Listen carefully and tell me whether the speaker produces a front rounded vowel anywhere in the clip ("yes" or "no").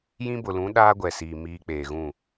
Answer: no